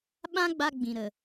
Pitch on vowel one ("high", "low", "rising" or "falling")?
high